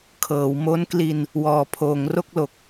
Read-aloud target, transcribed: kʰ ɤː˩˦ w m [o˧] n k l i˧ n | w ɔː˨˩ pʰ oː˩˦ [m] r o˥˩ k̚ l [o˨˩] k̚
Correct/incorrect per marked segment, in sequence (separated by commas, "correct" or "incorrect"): incorrect, incorrect, correct